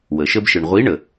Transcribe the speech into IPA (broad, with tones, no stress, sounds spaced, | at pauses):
w ə˩ ʃ ə˧ b ʃ ɯ˩ ɳ ʁʷ i˨˥ ɳ ə˩